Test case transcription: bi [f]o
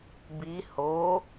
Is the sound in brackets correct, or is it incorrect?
incorrect